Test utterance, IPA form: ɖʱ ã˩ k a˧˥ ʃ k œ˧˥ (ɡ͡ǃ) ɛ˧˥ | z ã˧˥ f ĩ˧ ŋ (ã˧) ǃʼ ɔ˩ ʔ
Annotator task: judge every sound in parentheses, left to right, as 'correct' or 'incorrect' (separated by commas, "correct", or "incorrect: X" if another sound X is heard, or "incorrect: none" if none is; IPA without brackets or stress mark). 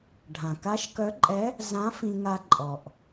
incorrect: ǃʼ, incorrect: a˧